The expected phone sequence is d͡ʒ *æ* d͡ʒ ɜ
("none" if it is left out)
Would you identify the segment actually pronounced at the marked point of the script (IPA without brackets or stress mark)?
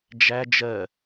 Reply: æ